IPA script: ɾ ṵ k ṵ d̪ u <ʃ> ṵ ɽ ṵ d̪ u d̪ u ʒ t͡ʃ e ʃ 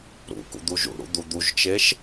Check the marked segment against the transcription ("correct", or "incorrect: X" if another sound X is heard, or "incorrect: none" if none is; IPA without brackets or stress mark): incorrect: ʒ